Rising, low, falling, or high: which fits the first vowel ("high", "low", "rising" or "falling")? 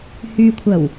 low